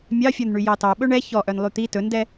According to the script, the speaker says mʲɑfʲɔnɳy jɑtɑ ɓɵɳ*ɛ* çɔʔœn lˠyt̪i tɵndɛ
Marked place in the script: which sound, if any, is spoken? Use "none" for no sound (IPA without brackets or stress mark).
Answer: ɛ